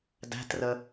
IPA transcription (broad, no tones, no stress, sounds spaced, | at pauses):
d æ̤ t r ə